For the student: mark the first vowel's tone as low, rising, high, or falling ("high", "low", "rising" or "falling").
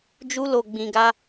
high